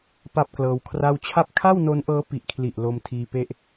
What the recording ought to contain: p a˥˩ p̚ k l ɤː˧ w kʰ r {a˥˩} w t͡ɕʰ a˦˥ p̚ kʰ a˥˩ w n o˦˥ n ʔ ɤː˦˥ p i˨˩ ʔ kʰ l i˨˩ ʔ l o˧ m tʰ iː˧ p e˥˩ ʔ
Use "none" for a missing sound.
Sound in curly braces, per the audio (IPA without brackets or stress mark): a˥˩